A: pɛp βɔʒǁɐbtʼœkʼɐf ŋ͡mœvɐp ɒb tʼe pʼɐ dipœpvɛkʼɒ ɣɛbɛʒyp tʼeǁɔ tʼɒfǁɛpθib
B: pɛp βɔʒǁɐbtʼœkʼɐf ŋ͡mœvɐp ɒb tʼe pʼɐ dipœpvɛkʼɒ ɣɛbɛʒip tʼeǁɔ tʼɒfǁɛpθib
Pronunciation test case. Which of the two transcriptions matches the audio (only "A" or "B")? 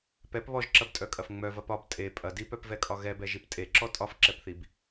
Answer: B